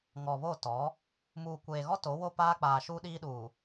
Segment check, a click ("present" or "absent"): absent